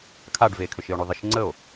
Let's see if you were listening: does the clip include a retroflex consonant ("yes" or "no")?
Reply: yes